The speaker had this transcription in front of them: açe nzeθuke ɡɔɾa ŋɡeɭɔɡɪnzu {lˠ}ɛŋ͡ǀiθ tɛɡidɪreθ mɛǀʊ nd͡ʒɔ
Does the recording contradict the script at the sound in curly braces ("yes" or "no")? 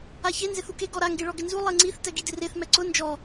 no